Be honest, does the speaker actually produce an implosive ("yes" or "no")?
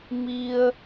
no